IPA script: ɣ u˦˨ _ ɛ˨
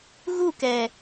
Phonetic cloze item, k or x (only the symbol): k